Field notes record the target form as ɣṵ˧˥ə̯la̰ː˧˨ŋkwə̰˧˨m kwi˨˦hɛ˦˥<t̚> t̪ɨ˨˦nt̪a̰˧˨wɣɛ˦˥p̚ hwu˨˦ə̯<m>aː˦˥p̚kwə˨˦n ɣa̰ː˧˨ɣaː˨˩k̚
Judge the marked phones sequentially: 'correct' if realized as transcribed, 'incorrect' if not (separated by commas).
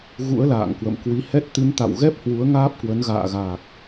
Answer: correct, incorrect